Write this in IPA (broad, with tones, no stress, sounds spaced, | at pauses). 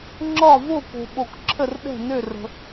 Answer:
ŋ͡ǁ ɒ˥˨ v o˥˨ k o̤˨ ɓ o˨ k ǁʰ ə˥˨ r ɗ ɛ̤˥˨ n ø˥˨ r ə̤˨